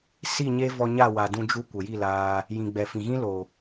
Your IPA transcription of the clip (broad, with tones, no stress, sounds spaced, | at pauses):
s i˦˨ ɲ e˦ v ɔ˧ ɲ a˦˨ w a˨ d ũ˧ d͡ʒ u˧ kʷ ə˨ j i˦˨ l aː˧ | j ĩ˨ ɡ͡b ɛ˨ f ĩ˨ ɣ ĩ˦ l o˨